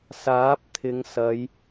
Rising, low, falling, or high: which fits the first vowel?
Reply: rising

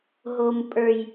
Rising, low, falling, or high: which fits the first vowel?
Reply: low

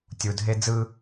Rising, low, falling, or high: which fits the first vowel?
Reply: low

